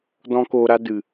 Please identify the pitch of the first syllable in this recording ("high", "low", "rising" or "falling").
high